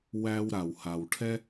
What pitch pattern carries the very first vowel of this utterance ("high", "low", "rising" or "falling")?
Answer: high